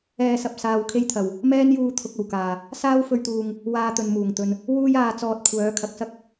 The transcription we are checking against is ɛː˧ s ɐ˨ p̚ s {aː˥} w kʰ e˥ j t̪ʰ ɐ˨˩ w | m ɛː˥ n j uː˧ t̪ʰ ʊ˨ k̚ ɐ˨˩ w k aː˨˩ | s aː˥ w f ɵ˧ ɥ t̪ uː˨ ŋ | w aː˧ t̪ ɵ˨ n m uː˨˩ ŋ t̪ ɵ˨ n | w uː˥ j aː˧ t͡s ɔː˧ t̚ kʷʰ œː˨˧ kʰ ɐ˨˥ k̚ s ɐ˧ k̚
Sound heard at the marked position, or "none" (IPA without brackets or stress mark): aː˧